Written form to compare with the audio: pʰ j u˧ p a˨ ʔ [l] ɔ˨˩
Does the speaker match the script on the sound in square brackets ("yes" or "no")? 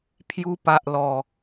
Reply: yes